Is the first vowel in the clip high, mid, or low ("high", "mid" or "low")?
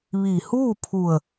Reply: high